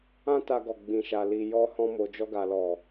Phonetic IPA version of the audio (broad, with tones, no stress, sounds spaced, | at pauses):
ã˦ t a˧ ɡ ɔ˨ ɡ͡b ĩ˧ ʃ a˧ l i˧ j ɔ˧ h ɔ̃˧ m o˨ d͡ʒ ɔ˧ ɡ a˨ l ɔ˨